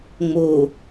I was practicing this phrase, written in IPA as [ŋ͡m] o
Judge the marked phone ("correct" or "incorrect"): correct